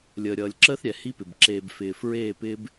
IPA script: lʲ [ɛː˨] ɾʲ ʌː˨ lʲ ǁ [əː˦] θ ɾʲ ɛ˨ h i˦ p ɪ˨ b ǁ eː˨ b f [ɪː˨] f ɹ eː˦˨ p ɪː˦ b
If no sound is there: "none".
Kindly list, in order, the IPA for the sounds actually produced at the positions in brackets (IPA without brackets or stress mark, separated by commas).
əː˨, əː˦, ɪː˨